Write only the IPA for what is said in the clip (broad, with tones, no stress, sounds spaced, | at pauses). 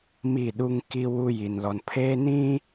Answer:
m i˦˨ ɗ u˦ ŋ k i˦ w u˦ j i˨ n l ɔ˨ n pʰ eː˦ n ĩ˦